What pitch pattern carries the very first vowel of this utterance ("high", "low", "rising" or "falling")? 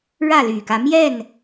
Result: falling